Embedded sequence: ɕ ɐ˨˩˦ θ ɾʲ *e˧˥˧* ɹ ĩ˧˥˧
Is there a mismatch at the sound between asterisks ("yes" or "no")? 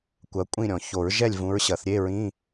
no